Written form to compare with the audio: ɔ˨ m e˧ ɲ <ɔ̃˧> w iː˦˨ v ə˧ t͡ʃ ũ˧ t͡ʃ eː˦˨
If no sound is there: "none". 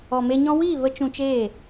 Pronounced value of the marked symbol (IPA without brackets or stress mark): ɔ̃˧